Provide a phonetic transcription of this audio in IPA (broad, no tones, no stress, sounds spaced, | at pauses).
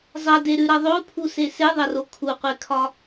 zˤ ɐ d e ɾ ʉ ɾ ɐ ðˤ o pʰ u s e s e ðˤ ɐ r o kʰ u qʷ e kʰ ɒ